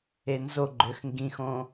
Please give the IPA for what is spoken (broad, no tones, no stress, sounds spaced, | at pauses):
e n z o ɡ͡ǃ ø x ŋ ɡ ĩ x õ